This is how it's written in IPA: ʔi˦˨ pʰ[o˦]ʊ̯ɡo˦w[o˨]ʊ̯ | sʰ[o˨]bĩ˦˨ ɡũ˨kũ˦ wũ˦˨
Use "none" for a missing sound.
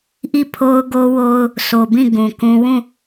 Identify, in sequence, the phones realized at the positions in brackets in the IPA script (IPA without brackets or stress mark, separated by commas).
o˦, o˦, o˨